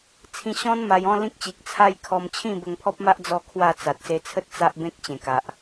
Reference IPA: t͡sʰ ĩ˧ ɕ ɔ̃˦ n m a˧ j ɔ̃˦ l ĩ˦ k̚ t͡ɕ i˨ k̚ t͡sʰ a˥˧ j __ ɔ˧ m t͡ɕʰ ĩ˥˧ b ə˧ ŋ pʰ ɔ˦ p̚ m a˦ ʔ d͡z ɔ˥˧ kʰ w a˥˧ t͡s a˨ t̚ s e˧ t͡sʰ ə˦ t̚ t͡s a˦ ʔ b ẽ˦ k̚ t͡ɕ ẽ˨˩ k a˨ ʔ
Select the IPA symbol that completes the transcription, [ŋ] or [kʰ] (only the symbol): kʰ